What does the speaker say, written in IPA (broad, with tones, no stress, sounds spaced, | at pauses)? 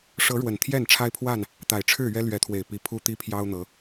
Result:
ʂ ɤ˨˦ ɻ w ə˨˩ n t̪ʰ j ɛ˥˨ n ʈ͡ʂʰ a˦ ɪ̯ pʰ w a˥˨ n | t̪ a˨˩ ɪ̯ ʈ͡ʂʰ ɻ̩˥˨ ɥ ɛ˦ l ɥ ɛ˨˦ t̪ʰ w e˨˩ ɪ̯ p i˨˦ pʰ u˦ t̪ i˦ pʰ j ɑ˦ ʊ̯ n̪ ɤ˨˦